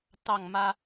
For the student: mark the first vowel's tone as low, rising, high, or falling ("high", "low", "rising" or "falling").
falling